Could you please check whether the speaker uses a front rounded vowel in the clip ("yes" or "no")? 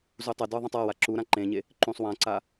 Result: no